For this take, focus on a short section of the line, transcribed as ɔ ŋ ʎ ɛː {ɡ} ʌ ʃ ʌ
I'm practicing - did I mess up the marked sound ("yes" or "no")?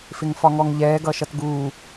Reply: no